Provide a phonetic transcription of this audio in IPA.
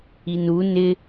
i n u n ɪ

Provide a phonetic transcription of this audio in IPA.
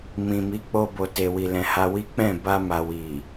m ĩ˨ m i˨˦ k͡p o˧ b o˨ t e˨ w i˨ l ɛ̃˨ h a˧ w i˦ k͡p ɛ̃˦˨ b a˧ m a˨ w i˨

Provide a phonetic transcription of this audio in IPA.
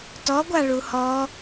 t ɔ ɡʷ a ɭ u h ɔ

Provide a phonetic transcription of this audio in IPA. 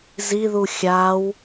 z i ð u xʲ a w

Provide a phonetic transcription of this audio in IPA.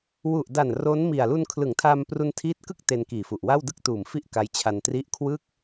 w u˨˩ ʔ d a˨˩ n r o˦˥ n m i˨˩ a̯ l u˧ n kʰ l ɯ˩˦ ŋ tʰ a˧ m p r u˧ n tʰ iː˦˥ t̚ k ɯ˥˩ k̚ t e˧ n k iː˨˩ f u˨˩ ʔ w a˥˩ w d ɯ˥˩ k̚ t uː˨˩ m f i˥˩ ʔ k a˦˥ j t͡ɕʰ a˧ n t r i˦˥ ʔ kʰ w ɯ˥˩ k̚

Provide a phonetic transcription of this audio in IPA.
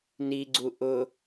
n i ɡ͡ǀ u ʔ ʊ

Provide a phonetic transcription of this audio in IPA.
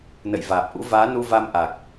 n ə̰˧˨ j v aː˨˩ p̚ ʔ ṵ˧˥ v aː˨˦ n u˧ v a˧ m ʔ a˨˩ k̚

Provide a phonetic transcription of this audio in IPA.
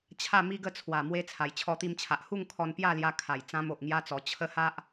t͡ɕʰ a˥˧ m i˦ ɡ ə˥˧ t͡sʰ w a˨˩ m w e˧ t͡sʰ a˨˩ j t͡ɕʰ ɔ˧ t̪ i˧ m t͡ɕʰ a˨ ʔ h u˥˧ ŋ kʰ ɔ˧ n p j a˥˧ l j a˧ kʰ a˨˩ j t͡s ã˧ m o˨ ʔ ŋ j a˧ t͡s ɔ˨˩ t͡ɕʰ ə˦ h a˦ ʔ

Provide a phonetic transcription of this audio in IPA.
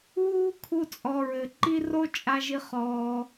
w uː˦ kʰ u˧ t͡sʼ ɔ˨ ɹ ɘ˨ ǃ i˦ r o˦ t͡ʃʼ a˧ ʒ i˦ χ ɔː˧

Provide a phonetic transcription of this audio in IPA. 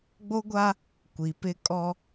ɡ͡b o˦ ɡʷ a˦ | kʷ i˨ p ɪ˦ kʼ ɔ˦

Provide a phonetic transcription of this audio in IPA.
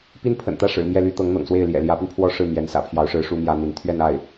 p i˥ n pʰ ə̰˨˩ n t̪ ä˥˩ ʂ ɻ̩˨˩ m j ɛ˥˩ l y˥ t̪ ɤ˧˥ ŋ n̪ ɤ̰˨˩ ŋ s w e˥˩ ɪ̯ l j ɛ̰˨˩ l j ä˧˥ p y˧ n pʰ w ɔ˥ ʂ ɻ̩˥˩ m j ɛ˧˥ n s ä̰˨˩ pʰ j ɑ˧˥ ʊ̯ ʂ ɻ̩˧˥ ʂ u˥ m j ä˥ n̪ i˧˥ n t̪ʰ ɥ ɛ˥˧ n a˥˩ ɪ̯

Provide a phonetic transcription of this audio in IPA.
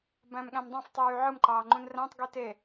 b æ̃ m ɠ æ̃ m dˤ ɑ̃ f tˤ yː ʕ ɯ m ǃ ɑː ŋ͡ǃ ũ n r æ̃ tˤ ɡ i t e

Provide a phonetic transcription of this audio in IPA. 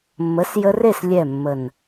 mː ə˨˦ s j ə˧ r e˦˨ s lʲ ɛ˦˨ mː ə˨ n

